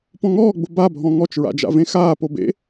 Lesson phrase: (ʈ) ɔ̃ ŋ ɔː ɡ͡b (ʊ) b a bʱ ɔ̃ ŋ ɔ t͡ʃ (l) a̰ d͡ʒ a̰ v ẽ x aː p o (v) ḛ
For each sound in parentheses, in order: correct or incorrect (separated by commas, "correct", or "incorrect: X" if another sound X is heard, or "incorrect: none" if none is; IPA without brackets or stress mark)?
incorrect: p, correct, incorrect: ɹ, incorrect: b